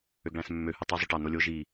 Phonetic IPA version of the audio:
ø ɡ ɭ æ̃ s mː ø h ɯ tˤ i zˤ y ʈ ɑ n o lʲ o ʒ i

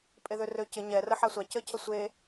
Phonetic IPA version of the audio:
pʼ e ð ø r ø c ɪ ɲ ɛ r ə ħ a sʷ a c ə cʰ ə sʷ e

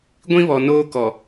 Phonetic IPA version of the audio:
ɡʷ ĩ˦ β ɔ˨ n oː˦ k ɔ˨

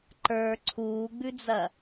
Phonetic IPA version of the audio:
ǃ ə˞ ǀʰ uː ɡ͡b ʉ d͡z ɐ

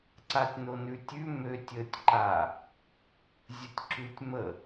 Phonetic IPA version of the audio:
ǀ a tʲ n o n ʉ tʲ ʉ m ø tʲ ə tʲ ǃ a | zʲ ə tʲ ǁ ʉ tʲ m ə

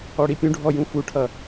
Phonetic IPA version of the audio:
ɔ ɽ i pʲ ũ ɖʱ ɔ j ũ f u ʈʰ ʌ

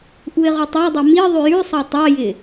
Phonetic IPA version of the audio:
ʔ u ɪ̯ ʁ u tˤ a dˤ e m i ðˤ ʉ j ʉ sˤ ɑ tˤ ɑ j ɪ

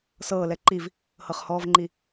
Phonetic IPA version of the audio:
s ɤː l ɛ ǃ i v | h ɤ χ h ɔː v ŋ͡ǃ i

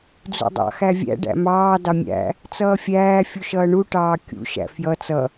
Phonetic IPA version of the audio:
d͡z ṵ dˤ ɑ̰ x æ vʲ æ̰ ɖ æ̰ m ɑː d ɑ mʲ æ̰ | t͡s ʌː fʲ æː fʲ u ʃ ʌː ɳ u ʈ ɑː kʲ ṵ ʃ æ̰ f j ʌ t͡s ʌ

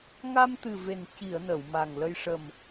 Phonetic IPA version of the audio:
ŋ a˧ m t̪ ɨ˨˩ v e˨˩ n c i˨˩˨ ə̯ n ə˨˩˨ w m a˨˩ ŋ l ə˧ j ʂ ə˨˩ m

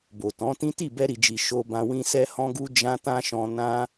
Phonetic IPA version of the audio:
b o˨ t ɔ̃˨˦ t ĩ˦ t i˦˨ b ɛ˧ ɾ i˨ d͡ʒ i˨ ʃ o˧ b ã˧ w ĩ˦ s ɛ˦ h ɔ̃˦ ɡ u˦ d͡ʒ ã˦ t ã˦ ʃ ɔ̃˧ n ã˦

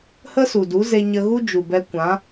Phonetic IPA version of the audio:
h ə˦ s u˨ d u˨˦ z e˧ ɲ ə˧ ɣ u˦ d͡ʒ u˨ b ɛ˧ kʷ ã˨˦

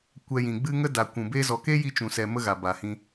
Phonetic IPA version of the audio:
kʷ ɛ˧ j ĩ˨ ɡ͡b ɨ˦ ŋ ə˦ d a˨ kʷ ũ˨ b e˧ z ɔ˨ k e˦ j i˧ t͡ʃ ũ˨ s ɛ˨ m ə˦ ɣ a˨ b a˨ h ĩ˧

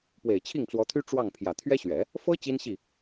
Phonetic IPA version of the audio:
p w e˨˩ ɪ̯ t͡ɕʰ i˥˩ ŋ t͡s w ɔ˧˥ t̪ʰ y˥ ʈ͡ʂ w ɑ˥˩ ŋ pʰ j ä˨˩ t̪ʰ ɥ ɛ˥ ɕ ɥ ɛ˨˩˦ | f ɤ˥ t͡ɕ i˥ n ɕ i˥˩

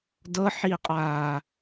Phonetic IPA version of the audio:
d ɤ ħ iː qʼ aː

